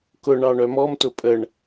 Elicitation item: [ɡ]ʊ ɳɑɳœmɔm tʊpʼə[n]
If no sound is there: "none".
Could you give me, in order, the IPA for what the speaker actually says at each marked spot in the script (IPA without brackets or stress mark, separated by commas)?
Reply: k, ɳ